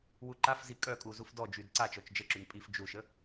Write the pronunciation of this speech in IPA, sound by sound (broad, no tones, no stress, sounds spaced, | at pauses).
w u ǃ a f z i kʼ œ kʼ u z u f d ɔ d͡ʒ y d ǀ a t͡ʃ ɔ t͡ʃ d͡ʒ ə ǁ y n pʼ i f d͡ʒ u ʃ ə